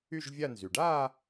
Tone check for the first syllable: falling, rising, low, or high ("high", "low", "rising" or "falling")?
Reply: falling